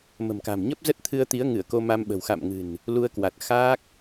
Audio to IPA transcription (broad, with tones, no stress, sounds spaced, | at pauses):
m ə̤˨˩ m k a̤˨˩ m ɲ ə˦˥ p̚ z ə˦˥ t̚ t̪ʰ ɨ˧ ə̯ t̪ i˨˦ ə̯ ŋ ɨ˧˩ ə̯ k o˧ m a˧ m ɓ ə̤˨˩ w x a̰˧˨ m ŋ ɨ̤˨˩ n | l u˧ ə̯ k w a˨˩ t̚ x aː˦˥ k̚